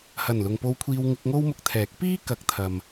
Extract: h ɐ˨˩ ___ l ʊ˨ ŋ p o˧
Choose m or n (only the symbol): n